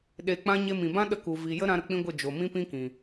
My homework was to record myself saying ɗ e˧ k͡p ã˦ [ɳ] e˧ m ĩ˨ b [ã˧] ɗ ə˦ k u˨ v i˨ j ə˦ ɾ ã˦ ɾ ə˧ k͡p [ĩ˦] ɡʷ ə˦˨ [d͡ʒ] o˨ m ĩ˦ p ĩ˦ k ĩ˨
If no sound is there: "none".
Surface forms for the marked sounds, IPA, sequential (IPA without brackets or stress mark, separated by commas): ɲ, ã˦, ĩ˦, d͡ʒ